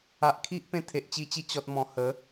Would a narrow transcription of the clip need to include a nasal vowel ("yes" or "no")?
yes